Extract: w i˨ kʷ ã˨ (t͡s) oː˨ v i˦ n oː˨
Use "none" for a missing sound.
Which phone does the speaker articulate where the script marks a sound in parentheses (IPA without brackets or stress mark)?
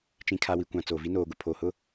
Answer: t͡s